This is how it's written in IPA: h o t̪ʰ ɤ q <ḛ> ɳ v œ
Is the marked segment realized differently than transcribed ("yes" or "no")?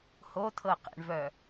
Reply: no